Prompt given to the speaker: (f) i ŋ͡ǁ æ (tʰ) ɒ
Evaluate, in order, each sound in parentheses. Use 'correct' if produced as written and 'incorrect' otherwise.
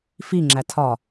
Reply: correct, correct

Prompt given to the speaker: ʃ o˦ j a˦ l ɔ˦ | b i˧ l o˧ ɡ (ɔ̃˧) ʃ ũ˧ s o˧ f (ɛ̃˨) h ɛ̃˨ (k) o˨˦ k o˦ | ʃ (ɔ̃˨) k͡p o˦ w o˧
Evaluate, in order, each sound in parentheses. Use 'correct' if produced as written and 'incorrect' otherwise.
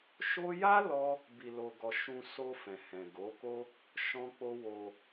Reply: incorrect, correct, incorrect, incorrect

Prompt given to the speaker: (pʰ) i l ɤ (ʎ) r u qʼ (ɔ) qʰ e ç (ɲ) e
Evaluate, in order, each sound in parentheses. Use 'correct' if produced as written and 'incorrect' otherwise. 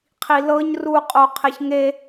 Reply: incorrect, incorrect, incorrect, incorrect

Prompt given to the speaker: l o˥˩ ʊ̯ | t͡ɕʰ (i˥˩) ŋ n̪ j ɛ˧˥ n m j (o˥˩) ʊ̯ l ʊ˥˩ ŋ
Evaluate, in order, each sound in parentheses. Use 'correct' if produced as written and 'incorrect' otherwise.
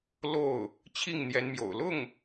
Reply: correct, incorrect

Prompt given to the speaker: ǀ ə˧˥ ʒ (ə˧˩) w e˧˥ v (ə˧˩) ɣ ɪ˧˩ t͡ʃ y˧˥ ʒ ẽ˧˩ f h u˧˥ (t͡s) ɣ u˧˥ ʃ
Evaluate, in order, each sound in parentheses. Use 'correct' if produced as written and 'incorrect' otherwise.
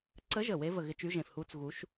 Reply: correct, correct, correct

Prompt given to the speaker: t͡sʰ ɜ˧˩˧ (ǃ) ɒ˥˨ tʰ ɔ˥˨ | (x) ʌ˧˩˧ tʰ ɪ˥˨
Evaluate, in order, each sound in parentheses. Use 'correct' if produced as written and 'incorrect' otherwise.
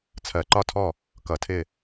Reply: correct, incorrect

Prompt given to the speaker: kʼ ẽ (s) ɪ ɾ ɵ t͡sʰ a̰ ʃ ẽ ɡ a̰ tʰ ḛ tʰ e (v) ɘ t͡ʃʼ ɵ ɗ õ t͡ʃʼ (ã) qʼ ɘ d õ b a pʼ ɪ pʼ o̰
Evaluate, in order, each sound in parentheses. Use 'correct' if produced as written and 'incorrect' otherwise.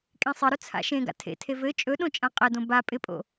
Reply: incorrect, correct, correct

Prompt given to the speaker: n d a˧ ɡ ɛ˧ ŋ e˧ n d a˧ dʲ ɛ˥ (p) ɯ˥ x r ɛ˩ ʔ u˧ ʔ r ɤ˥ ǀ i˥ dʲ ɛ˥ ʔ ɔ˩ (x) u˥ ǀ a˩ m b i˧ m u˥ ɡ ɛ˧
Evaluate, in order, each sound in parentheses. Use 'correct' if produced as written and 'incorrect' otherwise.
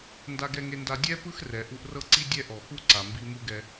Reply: correct, correct

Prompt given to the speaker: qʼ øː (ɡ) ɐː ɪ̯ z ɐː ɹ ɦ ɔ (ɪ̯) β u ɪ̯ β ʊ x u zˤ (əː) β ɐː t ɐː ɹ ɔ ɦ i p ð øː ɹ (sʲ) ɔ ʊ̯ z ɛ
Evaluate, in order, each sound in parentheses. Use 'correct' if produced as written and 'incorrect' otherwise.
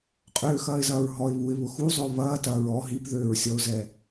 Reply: incorrect, correct, incorrect, correct

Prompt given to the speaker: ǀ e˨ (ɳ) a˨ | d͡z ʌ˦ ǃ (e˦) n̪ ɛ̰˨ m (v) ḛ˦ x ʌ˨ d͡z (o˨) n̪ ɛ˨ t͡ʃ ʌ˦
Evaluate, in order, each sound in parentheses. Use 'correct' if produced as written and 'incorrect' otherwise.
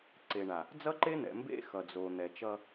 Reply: correct, correct, incorrect, correct

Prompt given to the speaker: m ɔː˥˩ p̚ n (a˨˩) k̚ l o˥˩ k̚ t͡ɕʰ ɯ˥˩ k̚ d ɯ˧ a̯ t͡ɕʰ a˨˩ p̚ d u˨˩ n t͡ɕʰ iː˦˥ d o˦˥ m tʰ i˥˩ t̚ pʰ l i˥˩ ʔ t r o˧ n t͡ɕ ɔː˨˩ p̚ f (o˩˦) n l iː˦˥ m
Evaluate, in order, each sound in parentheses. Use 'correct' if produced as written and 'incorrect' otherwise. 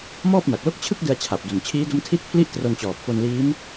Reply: correct, incorrect

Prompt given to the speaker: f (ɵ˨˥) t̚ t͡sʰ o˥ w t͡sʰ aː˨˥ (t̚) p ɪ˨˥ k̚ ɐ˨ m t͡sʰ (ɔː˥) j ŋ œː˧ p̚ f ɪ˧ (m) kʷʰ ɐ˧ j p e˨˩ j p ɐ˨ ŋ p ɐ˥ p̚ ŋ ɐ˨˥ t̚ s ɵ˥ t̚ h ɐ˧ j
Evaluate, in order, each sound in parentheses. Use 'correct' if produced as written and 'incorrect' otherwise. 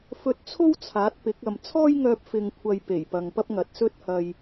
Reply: incorrect, correct, correct, incorrect

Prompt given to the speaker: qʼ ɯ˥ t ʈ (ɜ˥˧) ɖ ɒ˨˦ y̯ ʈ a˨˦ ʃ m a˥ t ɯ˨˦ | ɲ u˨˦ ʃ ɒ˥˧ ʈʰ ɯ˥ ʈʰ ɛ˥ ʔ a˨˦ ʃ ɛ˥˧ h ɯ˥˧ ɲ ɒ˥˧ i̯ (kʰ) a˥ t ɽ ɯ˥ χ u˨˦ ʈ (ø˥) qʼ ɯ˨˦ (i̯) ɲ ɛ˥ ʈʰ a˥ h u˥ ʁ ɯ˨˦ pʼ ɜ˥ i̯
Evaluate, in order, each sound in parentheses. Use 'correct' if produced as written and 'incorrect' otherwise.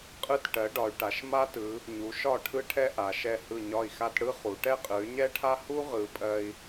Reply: incorrect, incorrect, incorrect, incorrect

